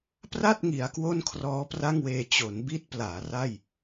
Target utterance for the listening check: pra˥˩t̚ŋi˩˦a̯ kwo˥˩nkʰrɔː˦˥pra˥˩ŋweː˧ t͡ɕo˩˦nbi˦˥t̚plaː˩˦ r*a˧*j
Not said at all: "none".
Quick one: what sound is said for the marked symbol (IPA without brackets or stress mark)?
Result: a˥˩